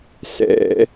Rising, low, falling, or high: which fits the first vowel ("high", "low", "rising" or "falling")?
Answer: high